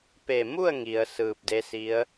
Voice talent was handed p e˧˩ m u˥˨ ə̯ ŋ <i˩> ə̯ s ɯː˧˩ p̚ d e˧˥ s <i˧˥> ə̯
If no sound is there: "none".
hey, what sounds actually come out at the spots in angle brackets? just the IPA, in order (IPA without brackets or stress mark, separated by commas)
i˩, i˧˥